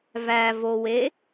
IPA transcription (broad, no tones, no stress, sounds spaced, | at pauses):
v æ v o w e